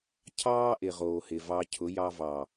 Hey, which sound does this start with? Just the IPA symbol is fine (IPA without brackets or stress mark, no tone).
cʰ